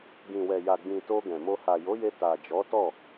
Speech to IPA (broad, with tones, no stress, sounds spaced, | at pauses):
ɡ ĩ˨ w ɛ˨ j a˨ ɡ͡b ĩ˨ t o˧ ɡ ɛ̃˨ m o˧ h a˨ j o˨˦ j e˧ t a˨ d͡ʒ ɔ˨˦ t ɔ˦˨